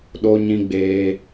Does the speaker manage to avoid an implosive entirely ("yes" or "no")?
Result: no